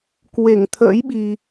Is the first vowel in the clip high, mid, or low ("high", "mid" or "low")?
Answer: mid